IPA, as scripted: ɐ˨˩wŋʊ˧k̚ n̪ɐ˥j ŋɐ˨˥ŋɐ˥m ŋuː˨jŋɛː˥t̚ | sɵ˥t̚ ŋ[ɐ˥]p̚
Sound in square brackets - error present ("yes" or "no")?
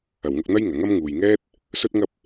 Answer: yes